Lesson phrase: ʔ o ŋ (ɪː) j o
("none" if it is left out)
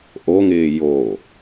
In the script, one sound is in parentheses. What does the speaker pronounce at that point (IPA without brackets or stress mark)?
ɪː